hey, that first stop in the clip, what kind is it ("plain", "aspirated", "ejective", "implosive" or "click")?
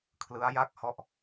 aspirated